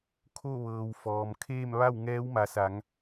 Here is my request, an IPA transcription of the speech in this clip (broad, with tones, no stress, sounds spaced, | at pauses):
kʰ o˥˨ ʋ ɤː˩ w f ɔː˩ m kʰ eː˥˨ m ʋ a˥˨ w ŋ ɛː˧˥ w m a˩˧ s a˩˧ ŋ